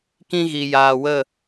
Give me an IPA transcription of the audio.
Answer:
k ĩ˧ ɣ i˨ j aː˨ w ə˦˨

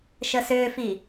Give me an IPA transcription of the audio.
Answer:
ʃ ə s ʏː f i

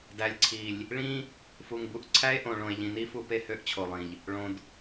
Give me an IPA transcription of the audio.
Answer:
d æ˨ lʲ ǀʰ i˨ lʲ | ɭ ĩ˦ | f u˨ ŋ b u˨ ʔ ǀʰ æ˦ e̯ ʔ õ˨ ɭ õ˨ e̯ ʎ ĩ˨ n i˦ f u˨ p e˦ h ø˦ ʔ t͡ɕʰ o˨ lˠ ĩ˨ ʎ | ɭ õ˨ d

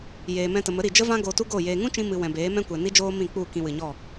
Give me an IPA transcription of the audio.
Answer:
j eː˨ m ɛ̃˧ t ə˨ m ə˨˦ ɾ i˨ d͡ʒ ə˦ v ã˦ ɡ oː˧ t u˦ ɡ o˦˨ j eː˧ ŋ ũ˦ t͡ʃ ĩ˧ m ɨ˨ w ɛ̃˨ b eː˨˦ m ɛ̃˦ kʷ ɛ˨ n i˦ d͡ʒ oː˦ m ĩ˦˨ k͡p u˦˨ k ĩ˧ w ɨ˨ ɲ ɔ˦˨

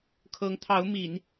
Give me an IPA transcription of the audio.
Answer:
kʰ ɤ˧˥ ŋ t̪ʰ ɑ˧˥ ʊ̯ m i˨˩˦ n

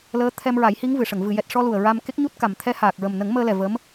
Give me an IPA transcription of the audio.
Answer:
l əː˧˥ t̪ʰ ɛ˧ m ɹ a˨˩˦ j h i˧˥ ŋ v ɨ˨˩˨ ʂ ə˨˩˨ ŋ v ɨ˨˩˨ j ɛ˨˩ t̚ ʂ ɔ˧ l u˨˩ ə̯ ɹ a˧ m k e˦˥ k̚ ɲ u˦˥ t̚ k a˨˩ m t̪ʰ ɛ˧˥ h aː˨˩ k̚ ɹ ə˨˩ m n ə˨˩˦ ŋ m əː˧ l ɛ˨˩ v ə˧˥ m

